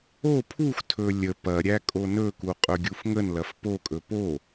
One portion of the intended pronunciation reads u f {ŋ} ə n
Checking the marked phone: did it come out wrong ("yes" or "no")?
no